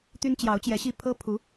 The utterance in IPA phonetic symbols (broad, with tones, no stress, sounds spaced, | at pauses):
t̪ y˥ n t͡ɕ j ɑ˧˥ ʊ̯ t͡ɕ j ɛ˧˥ ɕ i˥˩ pʰ ɤ˥ pʰ u˧˥